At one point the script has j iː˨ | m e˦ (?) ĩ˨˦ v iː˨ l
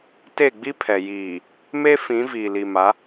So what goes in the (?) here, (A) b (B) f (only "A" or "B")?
B